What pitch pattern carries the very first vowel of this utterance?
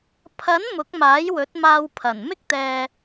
rising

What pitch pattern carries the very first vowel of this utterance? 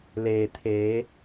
low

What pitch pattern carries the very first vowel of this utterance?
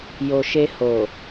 low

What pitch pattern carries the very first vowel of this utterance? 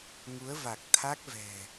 rising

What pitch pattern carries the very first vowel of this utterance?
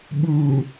low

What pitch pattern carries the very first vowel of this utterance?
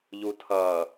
low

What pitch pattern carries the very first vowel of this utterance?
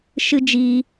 high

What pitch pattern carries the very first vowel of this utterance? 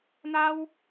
high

